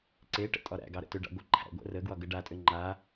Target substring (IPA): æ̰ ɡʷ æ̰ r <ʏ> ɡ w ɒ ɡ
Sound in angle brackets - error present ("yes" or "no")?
yes